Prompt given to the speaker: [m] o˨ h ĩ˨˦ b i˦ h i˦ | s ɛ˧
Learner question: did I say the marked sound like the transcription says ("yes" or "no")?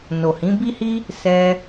no